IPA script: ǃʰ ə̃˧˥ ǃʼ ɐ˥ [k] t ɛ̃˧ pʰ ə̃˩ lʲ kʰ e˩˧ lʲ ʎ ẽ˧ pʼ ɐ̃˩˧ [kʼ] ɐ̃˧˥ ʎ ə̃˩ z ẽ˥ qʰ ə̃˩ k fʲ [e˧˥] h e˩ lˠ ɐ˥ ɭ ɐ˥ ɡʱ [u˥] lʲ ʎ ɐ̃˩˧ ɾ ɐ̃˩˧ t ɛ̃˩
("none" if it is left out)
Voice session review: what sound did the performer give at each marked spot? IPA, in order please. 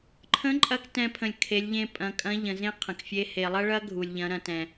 k, kʼ, e˥, u˩

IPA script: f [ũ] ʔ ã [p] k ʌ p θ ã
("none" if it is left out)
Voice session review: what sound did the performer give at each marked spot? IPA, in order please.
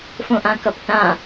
õ, none

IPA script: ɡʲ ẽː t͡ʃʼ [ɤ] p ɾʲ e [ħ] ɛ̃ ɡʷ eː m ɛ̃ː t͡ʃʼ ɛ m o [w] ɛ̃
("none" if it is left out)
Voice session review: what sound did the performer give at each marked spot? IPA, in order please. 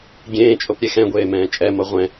o, x, ʁʷ

